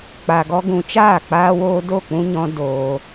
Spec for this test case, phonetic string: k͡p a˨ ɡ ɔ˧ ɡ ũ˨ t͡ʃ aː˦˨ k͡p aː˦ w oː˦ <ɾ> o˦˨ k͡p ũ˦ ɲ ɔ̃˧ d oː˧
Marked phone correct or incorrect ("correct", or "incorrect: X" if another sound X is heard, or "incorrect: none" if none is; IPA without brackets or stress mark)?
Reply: incorrect: d